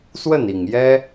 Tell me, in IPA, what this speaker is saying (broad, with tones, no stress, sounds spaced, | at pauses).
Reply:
s w ə˥˩ n i˨˩ ŋ j ɛ˥